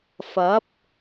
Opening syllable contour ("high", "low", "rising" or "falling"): rising